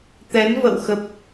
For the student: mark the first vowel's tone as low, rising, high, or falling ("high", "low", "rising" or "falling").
rising